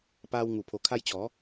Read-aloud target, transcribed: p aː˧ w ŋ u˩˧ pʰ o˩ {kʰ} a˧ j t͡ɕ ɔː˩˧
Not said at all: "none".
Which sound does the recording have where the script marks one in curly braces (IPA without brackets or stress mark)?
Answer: kʰ